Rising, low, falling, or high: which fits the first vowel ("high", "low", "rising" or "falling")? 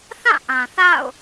falling